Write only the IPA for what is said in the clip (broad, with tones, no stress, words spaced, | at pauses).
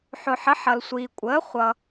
ħʊ˩ħə˩˥ ħʌ˩lsʷiː˩kʷʼəː˩˥ χʷʌː˩